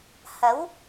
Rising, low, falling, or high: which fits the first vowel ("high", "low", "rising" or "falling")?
rising